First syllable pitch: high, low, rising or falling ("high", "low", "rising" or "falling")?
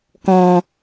low